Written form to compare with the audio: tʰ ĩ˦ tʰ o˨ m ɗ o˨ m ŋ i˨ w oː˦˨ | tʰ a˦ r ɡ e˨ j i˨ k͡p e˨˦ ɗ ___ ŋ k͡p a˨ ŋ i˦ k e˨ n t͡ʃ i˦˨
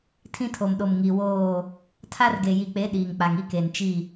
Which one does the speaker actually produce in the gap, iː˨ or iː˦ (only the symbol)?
iː˨